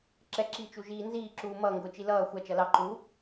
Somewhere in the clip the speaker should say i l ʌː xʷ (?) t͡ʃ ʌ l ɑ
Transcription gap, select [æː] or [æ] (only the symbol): æ